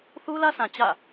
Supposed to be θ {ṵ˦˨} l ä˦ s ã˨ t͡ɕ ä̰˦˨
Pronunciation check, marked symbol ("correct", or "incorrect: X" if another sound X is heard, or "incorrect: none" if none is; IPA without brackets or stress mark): incorrect: u˦